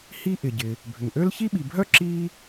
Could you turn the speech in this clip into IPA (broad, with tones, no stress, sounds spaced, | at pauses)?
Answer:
h i˦ ʔ ɪ˩ ɟ ɪ˩ | bʱ ʏ˩ ŋ ʔ ø˥ l ç i˥ ɓ i˨ bʱ œ˥ ǁ i˥